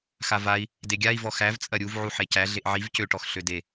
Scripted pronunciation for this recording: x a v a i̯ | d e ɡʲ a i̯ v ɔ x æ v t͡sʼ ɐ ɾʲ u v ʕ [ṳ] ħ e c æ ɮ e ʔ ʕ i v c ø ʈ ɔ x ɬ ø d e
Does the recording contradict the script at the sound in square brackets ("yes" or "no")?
yes